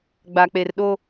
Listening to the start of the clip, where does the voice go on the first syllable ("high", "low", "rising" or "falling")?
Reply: low